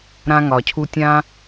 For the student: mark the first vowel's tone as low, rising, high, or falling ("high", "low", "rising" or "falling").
high